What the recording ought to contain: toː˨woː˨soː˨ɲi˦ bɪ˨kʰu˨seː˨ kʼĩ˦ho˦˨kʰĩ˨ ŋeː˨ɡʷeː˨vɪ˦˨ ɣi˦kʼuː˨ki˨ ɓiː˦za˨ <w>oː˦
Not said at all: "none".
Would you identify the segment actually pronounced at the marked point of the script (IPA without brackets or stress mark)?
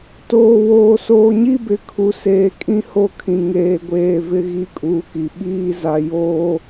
j